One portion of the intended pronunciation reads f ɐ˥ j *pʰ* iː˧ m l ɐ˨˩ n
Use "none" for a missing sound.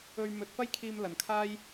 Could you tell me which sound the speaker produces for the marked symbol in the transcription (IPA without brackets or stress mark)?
kʰ